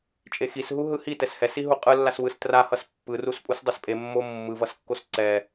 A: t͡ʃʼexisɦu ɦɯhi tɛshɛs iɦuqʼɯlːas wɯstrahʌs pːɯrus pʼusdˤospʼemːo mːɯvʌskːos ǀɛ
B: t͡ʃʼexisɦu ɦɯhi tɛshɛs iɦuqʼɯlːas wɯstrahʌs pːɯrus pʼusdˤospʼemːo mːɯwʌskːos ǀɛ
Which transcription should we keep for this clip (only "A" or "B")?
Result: A